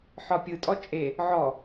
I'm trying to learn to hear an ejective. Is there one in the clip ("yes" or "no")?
yes